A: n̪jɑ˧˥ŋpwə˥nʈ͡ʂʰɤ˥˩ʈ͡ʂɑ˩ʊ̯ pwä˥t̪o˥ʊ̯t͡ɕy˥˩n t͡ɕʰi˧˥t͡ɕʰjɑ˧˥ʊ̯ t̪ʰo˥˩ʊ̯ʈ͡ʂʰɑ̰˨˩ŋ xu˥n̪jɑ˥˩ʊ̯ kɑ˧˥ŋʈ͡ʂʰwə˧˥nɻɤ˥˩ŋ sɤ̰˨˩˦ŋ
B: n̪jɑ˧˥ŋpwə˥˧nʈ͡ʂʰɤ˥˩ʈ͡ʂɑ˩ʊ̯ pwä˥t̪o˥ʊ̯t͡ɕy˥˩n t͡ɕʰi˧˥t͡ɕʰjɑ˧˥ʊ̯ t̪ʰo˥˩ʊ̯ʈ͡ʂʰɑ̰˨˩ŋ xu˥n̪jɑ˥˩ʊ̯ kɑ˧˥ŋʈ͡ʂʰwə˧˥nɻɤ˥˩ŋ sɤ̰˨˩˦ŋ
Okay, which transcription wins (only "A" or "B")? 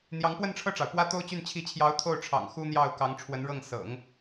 B